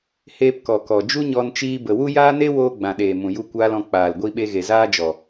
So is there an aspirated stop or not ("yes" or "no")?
no